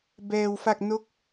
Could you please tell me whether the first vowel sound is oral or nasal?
oral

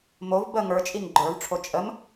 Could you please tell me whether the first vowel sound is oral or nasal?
oral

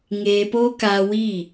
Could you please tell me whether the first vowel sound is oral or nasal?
oral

